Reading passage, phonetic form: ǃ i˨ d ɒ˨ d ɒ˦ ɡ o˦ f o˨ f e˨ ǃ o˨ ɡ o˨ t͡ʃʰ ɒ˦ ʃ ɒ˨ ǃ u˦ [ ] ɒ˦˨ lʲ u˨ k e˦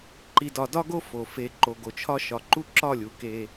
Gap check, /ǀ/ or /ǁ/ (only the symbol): ǁ